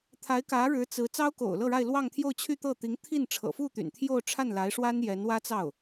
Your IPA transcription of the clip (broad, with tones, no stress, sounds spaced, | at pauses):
t̪ʰ a˧˥ ɪ̯ k ä˧˥ ɻ ɻ̩˧˥ t͡s ɹ̩˧˥ t͡s ɑ˥ ʊ̯ k o̰˨˩ ʊ̯ l ɤ˥˧ ɻ a˥˧ ɪ̯ l w ɑ˥˧ ŋ t̪ʰ j o˥˧ ʊ̯ t͡ɕʰ y˥˧ t̪ ɤ˥˩ t̪ i˧˥ ŋ t̪ʰ i˥˩ n ʈ͡ʂʰ ɤ̰˨˩ f u˥˩ t̪ y̰˨˩ n t̪ʰ j o˥˧ ʊ̯ ʈ͡ʂʰ a˥˩ n l a˧˥ ɪ̯ ʂ w a˥ n j ɛ˧˥ n w ä˥ t͡s ɑ˥˩ ʊ̯